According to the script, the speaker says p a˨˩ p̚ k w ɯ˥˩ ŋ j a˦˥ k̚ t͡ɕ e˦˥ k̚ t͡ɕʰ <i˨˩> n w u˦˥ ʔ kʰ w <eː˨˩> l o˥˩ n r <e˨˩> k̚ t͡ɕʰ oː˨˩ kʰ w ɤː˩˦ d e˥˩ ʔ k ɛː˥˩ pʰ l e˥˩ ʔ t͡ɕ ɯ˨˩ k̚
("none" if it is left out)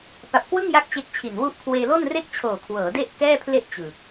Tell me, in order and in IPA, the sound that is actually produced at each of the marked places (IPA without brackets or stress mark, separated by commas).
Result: i˨˩, eː˧, e˥˩